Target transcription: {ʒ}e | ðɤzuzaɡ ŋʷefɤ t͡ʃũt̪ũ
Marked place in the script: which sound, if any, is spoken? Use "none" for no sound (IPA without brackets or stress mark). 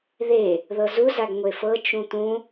ð